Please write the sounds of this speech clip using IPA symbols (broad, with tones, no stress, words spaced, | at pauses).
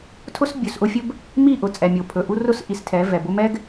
tʰʊ˦sbʲɵ˨sʔʊ˦fʲɵ˦b | mi˦˨ʔʊ˨ t͡sʼɛ˨mʲo˨pʰɵ˨ʔu˦ rʊ˦s ʔi˨stʰɛ˨˦ vɛ˨bʊ˦ mɛ˦ɡ